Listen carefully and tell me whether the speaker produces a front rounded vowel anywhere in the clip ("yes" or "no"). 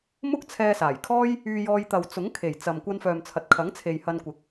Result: yes